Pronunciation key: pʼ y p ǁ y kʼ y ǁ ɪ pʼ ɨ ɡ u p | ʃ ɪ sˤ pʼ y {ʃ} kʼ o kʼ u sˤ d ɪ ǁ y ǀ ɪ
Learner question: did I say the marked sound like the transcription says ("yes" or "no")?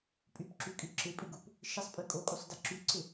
no